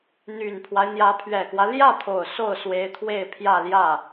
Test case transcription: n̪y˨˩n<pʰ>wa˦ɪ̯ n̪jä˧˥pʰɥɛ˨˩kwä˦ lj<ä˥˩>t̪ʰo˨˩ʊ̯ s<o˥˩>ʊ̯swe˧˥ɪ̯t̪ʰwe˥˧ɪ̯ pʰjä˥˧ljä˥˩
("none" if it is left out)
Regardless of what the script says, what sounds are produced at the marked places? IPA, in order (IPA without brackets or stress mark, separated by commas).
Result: pʰ, ä˥˩, o˥˩